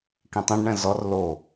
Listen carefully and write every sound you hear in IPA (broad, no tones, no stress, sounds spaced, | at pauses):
k ĩ tˤ ɛ̃ ɖ ɳ ɛ̃ z ɔ r l o